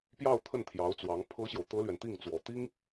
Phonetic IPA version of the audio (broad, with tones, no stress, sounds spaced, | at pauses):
p j ɑ˥˧ ʊ̯ t̪ʰ ə˥˩ n t̪ʰ j ɑ˧˥ ʊ̯ t͡s w ɑ˧˥ ŋ pʰ ɤ˥ ɕ j o˨ ʊ̯ t̪ ɤ˥ l ɥ ɛ˨ n t̪ i˥˩ ŋ t͡s w ɔ˨˩ t̪ i˥ ŋ